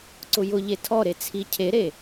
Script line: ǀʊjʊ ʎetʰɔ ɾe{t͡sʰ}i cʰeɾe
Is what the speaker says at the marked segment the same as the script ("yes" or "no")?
yes